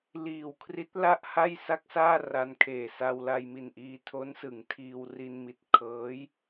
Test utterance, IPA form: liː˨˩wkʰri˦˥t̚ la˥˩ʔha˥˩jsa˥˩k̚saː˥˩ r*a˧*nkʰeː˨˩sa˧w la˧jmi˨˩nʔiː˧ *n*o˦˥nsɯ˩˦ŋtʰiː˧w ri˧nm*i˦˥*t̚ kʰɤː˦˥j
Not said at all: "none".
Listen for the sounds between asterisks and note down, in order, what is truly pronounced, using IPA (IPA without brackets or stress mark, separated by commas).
a˧, tʰ, i˨˩